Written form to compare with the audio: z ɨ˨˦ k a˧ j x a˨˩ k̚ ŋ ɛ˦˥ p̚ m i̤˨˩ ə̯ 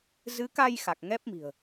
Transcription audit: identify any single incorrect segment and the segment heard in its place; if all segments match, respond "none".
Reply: none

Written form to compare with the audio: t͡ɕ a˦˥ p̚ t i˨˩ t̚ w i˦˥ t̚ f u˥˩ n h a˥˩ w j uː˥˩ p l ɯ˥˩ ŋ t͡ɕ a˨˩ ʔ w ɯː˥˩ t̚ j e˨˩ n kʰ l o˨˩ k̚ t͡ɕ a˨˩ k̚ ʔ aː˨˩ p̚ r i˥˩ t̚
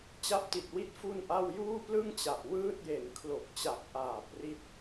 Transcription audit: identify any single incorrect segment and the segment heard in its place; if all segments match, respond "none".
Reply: h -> ʔ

